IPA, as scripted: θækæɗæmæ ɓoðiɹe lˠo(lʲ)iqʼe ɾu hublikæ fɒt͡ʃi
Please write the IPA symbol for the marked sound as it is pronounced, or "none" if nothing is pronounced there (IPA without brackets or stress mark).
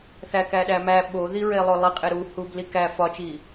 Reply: lˠ